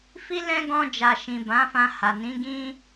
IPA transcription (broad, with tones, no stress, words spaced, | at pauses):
fi˧lɛ̃˧ ɡɔ̃˧d͡ʒa˨ʃĩ˨ bã˨˦fã˧ha˨ nĩ˨˦ɡĩ˦